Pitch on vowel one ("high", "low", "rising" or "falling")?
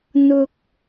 low